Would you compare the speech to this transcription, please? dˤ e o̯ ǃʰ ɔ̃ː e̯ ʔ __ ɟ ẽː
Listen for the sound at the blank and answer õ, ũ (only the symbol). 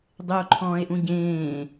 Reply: ũ